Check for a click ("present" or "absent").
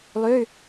absent